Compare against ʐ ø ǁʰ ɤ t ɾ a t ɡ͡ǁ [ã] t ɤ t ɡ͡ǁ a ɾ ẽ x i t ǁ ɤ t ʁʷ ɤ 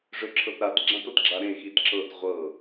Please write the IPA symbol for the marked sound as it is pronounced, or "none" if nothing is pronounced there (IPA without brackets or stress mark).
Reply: ã